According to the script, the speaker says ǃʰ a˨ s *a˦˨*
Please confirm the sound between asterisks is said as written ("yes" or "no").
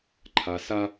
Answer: no